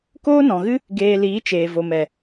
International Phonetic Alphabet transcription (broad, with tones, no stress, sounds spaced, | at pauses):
k oː˦ n ɔ̃˨ ɣ ɨ˦ | ɡ eː˧ l iː˨˦ t͡ʃ eː˨ v o˨ m ɛ˨